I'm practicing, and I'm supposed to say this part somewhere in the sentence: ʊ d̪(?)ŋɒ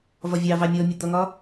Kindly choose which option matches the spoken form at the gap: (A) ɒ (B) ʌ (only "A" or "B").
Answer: B